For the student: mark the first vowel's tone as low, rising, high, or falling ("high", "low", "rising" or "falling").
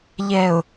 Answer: low